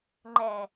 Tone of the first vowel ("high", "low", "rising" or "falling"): low